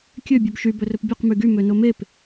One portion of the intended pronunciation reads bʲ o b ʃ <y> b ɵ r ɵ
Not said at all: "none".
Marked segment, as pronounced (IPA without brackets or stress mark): y